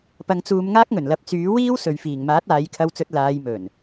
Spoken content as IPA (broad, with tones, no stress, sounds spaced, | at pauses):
p ɐ˧ ŋ t͡s uː˧ m ŋ aː˥ k̚ ŋ ɵ˨˩ n l ɐ˨˥ p̚ t͡s yː˨˥ w iː˥ w s ɵ˨ ɥ f iː˨˩ ŋ m aː˨˥ t̚ aː˨˧ j kʰ ɐ˧ w t͡s ɵ˧ t̚ l aː˨˧ j m ɵ˨˩ n